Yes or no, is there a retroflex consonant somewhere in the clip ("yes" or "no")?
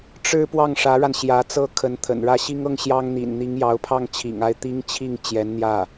yes